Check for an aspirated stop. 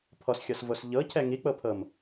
present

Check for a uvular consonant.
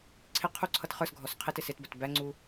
present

